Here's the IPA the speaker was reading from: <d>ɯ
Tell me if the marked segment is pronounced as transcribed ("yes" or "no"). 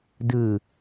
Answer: yes